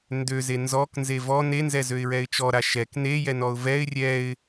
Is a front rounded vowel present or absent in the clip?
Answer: present